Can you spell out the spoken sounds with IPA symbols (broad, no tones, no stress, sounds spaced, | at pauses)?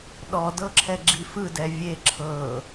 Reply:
ɗ ɔ d ɤ ǁʰ ɛ ɡ͡ǁ i f ɯ d ɛ vʲ e ǁʰ ɤ